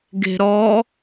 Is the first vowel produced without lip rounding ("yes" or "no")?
yes